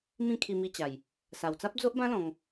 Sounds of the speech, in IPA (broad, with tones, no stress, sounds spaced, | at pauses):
m ĩ˥˧ kʰ i˧ m i˧ t͡ɕ a˨˩ j | s a˨˩ w t͡s a˦ p̚ d͡z o˦ ʔ b ã˦ l ɔ̃˧ ŋ